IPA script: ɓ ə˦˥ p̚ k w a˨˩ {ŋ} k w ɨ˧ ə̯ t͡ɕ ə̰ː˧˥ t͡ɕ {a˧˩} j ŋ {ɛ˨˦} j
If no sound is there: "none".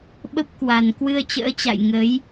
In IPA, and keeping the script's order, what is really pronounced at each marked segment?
n, a̰˧˨, ə˨˦

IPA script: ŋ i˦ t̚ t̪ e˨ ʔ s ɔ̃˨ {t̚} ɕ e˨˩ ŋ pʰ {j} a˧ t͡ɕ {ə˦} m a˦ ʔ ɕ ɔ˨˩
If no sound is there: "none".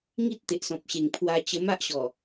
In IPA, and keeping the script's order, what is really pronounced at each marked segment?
p̚, w, ə˧

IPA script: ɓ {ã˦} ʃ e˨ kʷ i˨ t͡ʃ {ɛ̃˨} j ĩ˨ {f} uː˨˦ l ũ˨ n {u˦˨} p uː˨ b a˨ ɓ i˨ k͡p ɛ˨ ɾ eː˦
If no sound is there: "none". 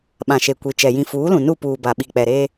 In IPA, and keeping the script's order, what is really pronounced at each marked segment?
ã˨, ɛ˨, f, u˦˨

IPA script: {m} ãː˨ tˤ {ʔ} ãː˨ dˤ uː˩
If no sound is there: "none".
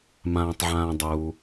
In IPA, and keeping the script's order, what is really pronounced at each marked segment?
m, ʕ

